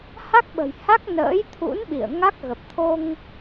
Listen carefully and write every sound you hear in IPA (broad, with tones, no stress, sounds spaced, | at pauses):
h a˦˥ k̚ ɓ ə̤˨˩ j h a˦˥ k̚ n ə̰ː˧˥ j t̪ʰ ṵ˧˥ n ɓ ḭ˧˨ ə̯ ŋ a˦˥ k̚ ɣ ə˨˩ p̚ t̪ʰ o˧ ŋ